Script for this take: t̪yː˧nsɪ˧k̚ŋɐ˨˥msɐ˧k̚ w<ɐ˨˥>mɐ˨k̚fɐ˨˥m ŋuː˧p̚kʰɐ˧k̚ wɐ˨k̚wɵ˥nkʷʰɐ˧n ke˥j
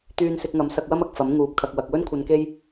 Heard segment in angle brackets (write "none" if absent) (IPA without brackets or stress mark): ɐ˥